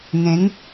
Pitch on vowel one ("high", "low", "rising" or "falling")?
rising